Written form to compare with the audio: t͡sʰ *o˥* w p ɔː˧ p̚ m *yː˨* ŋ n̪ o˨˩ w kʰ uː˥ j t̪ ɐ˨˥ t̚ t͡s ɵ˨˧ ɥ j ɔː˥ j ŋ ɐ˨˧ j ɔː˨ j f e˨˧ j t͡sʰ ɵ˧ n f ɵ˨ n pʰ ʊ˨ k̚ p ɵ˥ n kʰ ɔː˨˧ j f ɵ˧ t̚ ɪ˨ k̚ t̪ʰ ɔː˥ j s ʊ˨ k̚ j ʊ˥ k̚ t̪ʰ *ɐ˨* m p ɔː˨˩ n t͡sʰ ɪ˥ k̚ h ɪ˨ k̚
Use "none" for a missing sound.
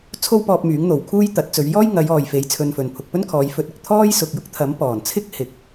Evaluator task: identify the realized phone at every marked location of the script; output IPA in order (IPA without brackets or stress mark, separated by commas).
o˥, yː˨˥, ɐ˨˥